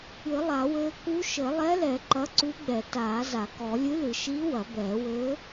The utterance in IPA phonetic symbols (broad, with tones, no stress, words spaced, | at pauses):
ɨ˨˩˦lˠa˨˩˦wɘː˧˥ ku˧˥ʃɘ˨˩˦ lˠɛ˧˥lɛ˨˩˦ ǃɐ˧˥ǀu˧˥ ɡ͡bɛ˨˩˦ taː˨˩˦za˨˩˦kɔ˨˩˦ lʲɨ˧˥lɨ˨˩˦ʃiː˧˥ wɐ˨˩˦bɛː˨˩˦wɘː˧˥